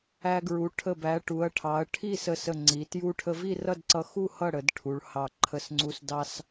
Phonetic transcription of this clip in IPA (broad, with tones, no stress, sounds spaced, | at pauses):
æ˧ ɡ ɹ u˩˧ ʈʰ ə˧˩ b æ˩˧ ʈ u˩˧ ɐ̯ ʈʰ ɑ˩˧ ɐ̯ ʈʰ i˥˨ s ə˧˩ s ə˧˩ ŋ͡ǀ i˩˧ t j u˧ ʈʰ ə˧ v i˥˨ r ʌ˥˨ d ǀ ʌ˧ x u˥˨ h ʌ˥˨ ɽ ə˩˧ d ʈʰ u˩˧ ɭ h ɑ˧˩ ǃʰ ə˧ s ŋ͡ǀ u˧ s d ɑ˧ s